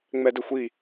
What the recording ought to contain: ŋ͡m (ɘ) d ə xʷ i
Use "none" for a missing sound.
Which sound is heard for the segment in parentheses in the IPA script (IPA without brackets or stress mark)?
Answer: ɛ